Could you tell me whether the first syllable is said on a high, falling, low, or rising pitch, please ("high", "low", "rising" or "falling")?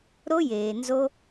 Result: high